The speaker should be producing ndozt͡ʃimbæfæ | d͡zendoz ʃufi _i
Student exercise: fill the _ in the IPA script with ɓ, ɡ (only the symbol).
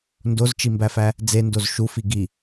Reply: ɡ